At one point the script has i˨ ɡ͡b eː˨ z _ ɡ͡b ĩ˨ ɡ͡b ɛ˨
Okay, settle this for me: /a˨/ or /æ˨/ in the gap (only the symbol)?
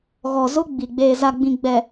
a˨